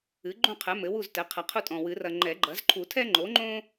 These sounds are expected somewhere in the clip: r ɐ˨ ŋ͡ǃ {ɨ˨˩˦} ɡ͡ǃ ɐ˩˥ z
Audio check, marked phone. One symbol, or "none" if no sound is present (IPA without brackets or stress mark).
ɛ˨˩˦